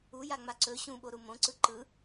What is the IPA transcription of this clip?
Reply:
ujaŋ͡ma ǀɵ ɕũɓoɾu mõǀɯ ǃɯ

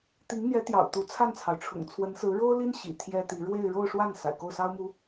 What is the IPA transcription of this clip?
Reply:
t̪i˧˥ŋn̪jɛ˧˥ t̪jɑ̰˨˩ʊ̯t̪u˧˥ t͡sʰa˥˩nt͡sʰɑ˩ʊ̯ʈ͡ʂʰʊ̰˨˩ŋ t͡sʰwə˧˥nsɹ̩˧˥ ɻo˥ʊ̯li˥n ɕḭ˨˩t̪ʰjɛ˥t̪i˧˥ ɻwe˥˧ɪ̯ ɻo˥˧ʊ̯ʂwa˥˩n sa̰˨˩ɪ̯ko˥˩ʊ̯sɑ˥ʊ̯mu˧˥

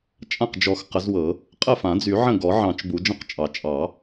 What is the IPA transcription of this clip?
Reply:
t͡ʃʼã˥˩qd͡ʒɔ˨˩˦x qə˨˩˦zwɤ˨˩˦ | qʼə˥˩fã˨˩˦d͡zy˨˩˦ ʕə̃˥˩ɡɔ˨˩˦ ʕɑ̃˨˩˦t͡ʃ bu˨˩˦d͡ʒə̃˥˩qt͡ʃʼɑ˨˩˦ t͡ʃʼɑ˨˩˦

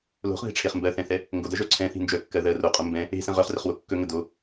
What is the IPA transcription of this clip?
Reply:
lo̤χðe̤ʈ͡ʂʰeχ mbɜθɛ̃θɛ | ŋɡodɜʒœ ǀʰɛ̃θi̤ nd͡ʒœkːɜ ðɜ roqʼo mbɛ̃ | e̤sə̃ ʁœχrəχwo kːɵŋə do

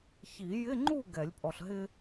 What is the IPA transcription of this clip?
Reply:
çi˨˩˦jɪ˧˥˧ŋ͡ǃu˥˨ ɡɛ˨˩˦lʲpʼɔ˨ɬɦɪ˥

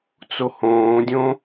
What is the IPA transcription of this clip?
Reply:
t͡sohõːdʲõ

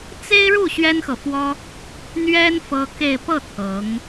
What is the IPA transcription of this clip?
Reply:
t͡se˥ɪ̯ɻu˥˩ ɕɥɛ˥nxɤ˨fwɔ˥ | n̪ɥɛ˥n fɤ˥ke˥˧ɪ̯ pɤ˥˩ t̪ʰɤ˧˥ŋ

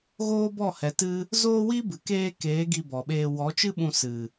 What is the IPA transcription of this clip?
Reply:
ɣoː˦bɔ˦˨hɛ˨˦tɨ˦ | zoː˦wi˦bɨ˨ keː˧ keː˨˦ ɡi˧bɔ˨ɓeː˧ wɔ˨˦t͡ʃɨ˦ɓũ˧ sɨ˨

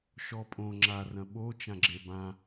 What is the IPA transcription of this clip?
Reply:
ʃɔpʼõ ŋ͡ǁarɐ̃ ɓo t͡ʃãɡ͡ǁebã

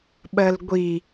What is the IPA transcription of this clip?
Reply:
ɓɜlɡʷi

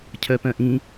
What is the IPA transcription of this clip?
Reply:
cʰœpœ̃ʔĩ

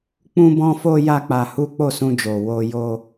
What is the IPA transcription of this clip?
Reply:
k͡pũ˦bɔ̃˦fo˦ ja˦k͡pa˧hu˦ k͡po˦˨sũ˧d͡ʒo˨ wo˧ jo˦

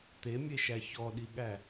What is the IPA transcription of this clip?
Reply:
t̪emʲeʃæ çɔɗiɠæ

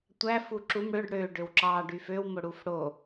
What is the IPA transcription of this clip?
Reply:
tʷæf uǁum ɽøɖ ɽø ɖøwǁɑ ɖyføwmo ɽufɽo

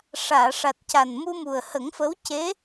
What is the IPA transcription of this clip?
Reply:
ʂaː˨˩˨ʂa˨˩t̚ca˨˩n mu˧mu˨˩ə̯hə˨˩˦ŋfə˧˥w ce˧˥

